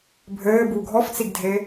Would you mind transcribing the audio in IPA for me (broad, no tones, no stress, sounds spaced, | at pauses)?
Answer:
bʱ ɘː b u ɡʱ ɔ f t͡s i ɡ dʱ e